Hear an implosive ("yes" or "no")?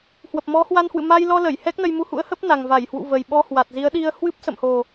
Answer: yes